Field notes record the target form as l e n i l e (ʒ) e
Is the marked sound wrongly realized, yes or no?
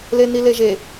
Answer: no